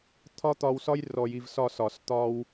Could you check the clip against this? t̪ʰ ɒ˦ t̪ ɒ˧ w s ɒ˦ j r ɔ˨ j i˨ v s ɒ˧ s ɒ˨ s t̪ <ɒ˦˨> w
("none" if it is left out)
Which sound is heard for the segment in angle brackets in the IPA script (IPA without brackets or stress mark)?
ɒ˧